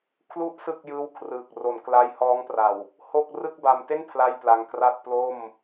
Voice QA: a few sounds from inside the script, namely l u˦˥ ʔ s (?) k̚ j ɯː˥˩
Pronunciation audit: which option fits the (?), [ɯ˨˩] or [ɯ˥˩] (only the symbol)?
ɯ˥˩